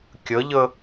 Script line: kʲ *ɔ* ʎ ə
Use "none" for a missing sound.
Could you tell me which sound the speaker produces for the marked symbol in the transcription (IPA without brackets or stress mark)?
ə